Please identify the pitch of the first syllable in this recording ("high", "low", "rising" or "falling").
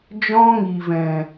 high